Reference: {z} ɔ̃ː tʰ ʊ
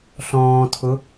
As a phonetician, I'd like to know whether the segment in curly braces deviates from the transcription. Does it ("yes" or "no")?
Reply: yes